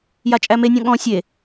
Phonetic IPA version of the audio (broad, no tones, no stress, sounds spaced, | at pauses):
j a t͡ʃʼ æ m e nʲ ɔ̃ ɠ ɔ̃ sʲ e